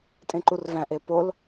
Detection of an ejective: present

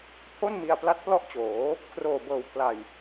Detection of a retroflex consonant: absent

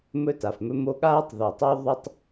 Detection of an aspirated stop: absent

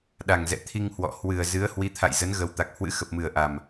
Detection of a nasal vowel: absent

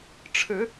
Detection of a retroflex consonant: present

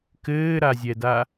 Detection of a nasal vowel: absent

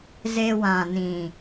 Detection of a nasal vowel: present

